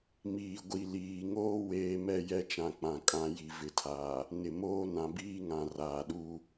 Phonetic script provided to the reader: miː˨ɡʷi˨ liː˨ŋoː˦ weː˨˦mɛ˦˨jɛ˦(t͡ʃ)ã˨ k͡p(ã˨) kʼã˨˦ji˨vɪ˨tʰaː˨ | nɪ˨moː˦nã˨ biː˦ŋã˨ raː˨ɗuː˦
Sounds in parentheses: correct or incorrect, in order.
correct, correct

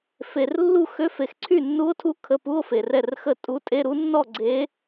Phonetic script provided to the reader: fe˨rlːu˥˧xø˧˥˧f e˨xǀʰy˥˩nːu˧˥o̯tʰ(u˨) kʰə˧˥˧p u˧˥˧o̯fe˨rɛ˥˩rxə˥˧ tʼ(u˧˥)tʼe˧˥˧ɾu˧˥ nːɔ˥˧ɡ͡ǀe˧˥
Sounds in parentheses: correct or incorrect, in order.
incorrect: u˧˥, correct

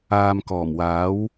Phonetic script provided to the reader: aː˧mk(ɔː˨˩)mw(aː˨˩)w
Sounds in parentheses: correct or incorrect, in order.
correct, incorrect: aː˨˥

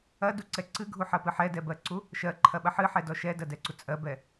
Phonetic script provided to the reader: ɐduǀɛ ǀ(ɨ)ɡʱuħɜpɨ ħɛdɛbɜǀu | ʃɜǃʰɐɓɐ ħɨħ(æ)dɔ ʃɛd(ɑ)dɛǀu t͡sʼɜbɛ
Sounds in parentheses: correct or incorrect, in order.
correct, incorrect: ɛ, incorrect: ɐ

